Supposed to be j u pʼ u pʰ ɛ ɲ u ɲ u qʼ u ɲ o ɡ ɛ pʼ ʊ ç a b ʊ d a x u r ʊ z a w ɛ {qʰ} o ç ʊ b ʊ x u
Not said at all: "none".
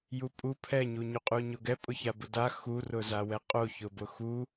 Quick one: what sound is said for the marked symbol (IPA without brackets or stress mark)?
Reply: qʼ